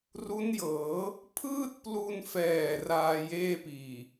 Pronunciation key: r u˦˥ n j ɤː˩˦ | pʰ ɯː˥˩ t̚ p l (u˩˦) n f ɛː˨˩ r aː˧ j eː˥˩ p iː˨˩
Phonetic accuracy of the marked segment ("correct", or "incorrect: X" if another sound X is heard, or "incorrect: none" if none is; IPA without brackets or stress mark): incorrect: u˧